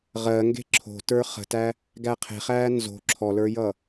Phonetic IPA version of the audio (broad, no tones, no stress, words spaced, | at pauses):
ʁɜ ŋɡe̤ǁʰo̤ tə˞χə̤tæ | ɡæqʰe̤χæː nzo̤ ǁʰɔlə˞jʌ